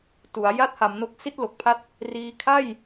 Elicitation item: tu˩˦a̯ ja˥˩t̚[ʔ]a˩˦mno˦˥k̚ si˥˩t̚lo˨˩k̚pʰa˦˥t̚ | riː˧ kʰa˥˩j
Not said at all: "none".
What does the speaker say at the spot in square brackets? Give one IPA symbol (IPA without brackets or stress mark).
h